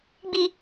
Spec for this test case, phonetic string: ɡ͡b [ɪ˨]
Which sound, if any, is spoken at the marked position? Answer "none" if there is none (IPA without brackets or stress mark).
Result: i˨